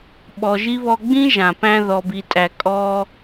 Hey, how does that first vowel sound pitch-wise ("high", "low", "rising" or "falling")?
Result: low